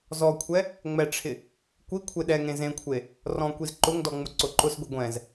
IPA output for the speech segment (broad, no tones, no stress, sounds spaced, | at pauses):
z ɔ kʷʰ ɛ | ŋ͡m ɛ ʈ͡ʂʰ ɪ | kʷ i kʷʰ e ɗ ɛ ŋ ẽ z ẽ kʷʰ e | r ɔ̃ kʷ i z ǃ ʊ ŋ d ɔ ŋ͡m ʊ ǀ ʊ ǃ ʊ s ɡʷ i ɡʷ ɛ̃ z